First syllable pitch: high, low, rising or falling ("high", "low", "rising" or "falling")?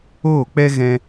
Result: falling